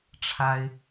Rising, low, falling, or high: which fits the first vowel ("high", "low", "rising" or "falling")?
high